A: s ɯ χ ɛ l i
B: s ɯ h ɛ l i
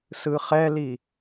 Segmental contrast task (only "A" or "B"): A